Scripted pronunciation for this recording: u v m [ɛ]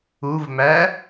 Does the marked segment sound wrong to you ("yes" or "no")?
yes